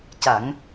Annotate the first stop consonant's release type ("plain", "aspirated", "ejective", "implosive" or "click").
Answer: plain